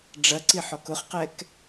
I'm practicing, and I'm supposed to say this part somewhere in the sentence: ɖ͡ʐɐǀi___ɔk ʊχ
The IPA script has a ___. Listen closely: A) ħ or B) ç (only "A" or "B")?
A